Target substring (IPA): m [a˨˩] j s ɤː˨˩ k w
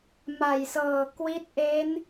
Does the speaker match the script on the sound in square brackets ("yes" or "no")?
yes